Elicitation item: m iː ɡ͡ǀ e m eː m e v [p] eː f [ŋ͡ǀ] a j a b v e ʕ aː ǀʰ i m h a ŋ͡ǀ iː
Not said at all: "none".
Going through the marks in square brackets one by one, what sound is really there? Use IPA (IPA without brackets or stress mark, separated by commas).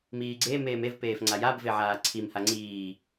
p, ŋ͡ǀ